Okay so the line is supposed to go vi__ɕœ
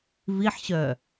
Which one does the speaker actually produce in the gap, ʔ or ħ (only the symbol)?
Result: ħ